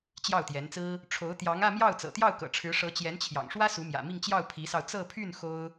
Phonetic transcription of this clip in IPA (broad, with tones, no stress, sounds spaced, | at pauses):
t͡ɕ j ɑ˥˩ ʊ̯ t̪ j ɛ˧˥ n t͡s ɹ̩˥ | ʈ͡ʂʰ o˧˥ ʊ̯ t̪ j ɑ˧˥ ŋ ä˥˧ m j ɑ˥˩ ʊ̯ t͡s ɤ̰˨˩ t̪ j ɑ˥˩ ʊ̯ k ɤ̰˨˩ ʈ͡ʂʰ ɻ̩˧˥ ʂ ɤ˧˥ t͡ɕ j ɛ˧˥ n t͡ɕʰ j ɑ̰˨˩ ŋ ʂ w ä˥ s u˧˥ m j ä̰˨˩ m i˥˧ ŋ t͡ɕ j ɑ˥˩ ʊ̯ pʰ i˧˥ s ɑ˧ ʊ̯ t͡s ɤ˥˧ pʰ y˥˩ n x o˥ ʊ̯